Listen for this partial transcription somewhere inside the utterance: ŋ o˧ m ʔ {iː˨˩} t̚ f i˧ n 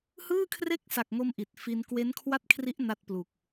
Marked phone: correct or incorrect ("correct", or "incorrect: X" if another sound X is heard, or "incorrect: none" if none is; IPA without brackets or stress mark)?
incorrect: i˨˩